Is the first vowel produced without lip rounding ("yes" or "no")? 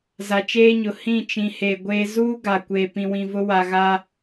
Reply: yes